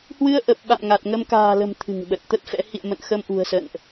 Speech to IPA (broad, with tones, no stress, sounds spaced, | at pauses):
h w ɨ˧ ə̯ ʔ ə˨˩ p̚ ɓ a̰˧˨ m ŋ a˨˩ t̚ ŋ ə˧ m k a̤ː˨˩ l ə̤˨˩ m t̪ʰ ɨ̤˨˩ ŋ ɓ ə˨˩ t̚ t̪ ə˦˥ t̚ f ɛ̰˧˥ h ḭ˧˨ ə̯ m ə̰˧˨ n x ə˧ m ʔ ṳ˨˩ ə̯ s ə̰˧˨ n ʔ